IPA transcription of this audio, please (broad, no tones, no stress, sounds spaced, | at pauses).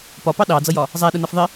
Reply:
p ɒ p ɑ ɗ ɑ d͡z ʌ j ɒ | zˤ æ ɗ ə n ʌ f ðˤ ɪ